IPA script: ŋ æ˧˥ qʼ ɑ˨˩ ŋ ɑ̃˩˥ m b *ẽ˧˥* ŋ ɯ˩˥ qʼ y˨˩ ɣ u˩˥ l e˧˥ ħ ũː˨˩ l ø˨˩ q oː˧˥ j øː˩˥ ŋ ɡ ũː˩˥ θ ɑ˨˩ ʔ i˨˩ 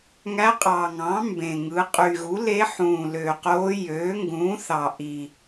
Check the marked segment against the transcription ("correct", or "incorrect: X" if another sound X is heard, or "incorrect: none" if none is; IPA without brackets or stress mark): incorrect: ẽ˨˩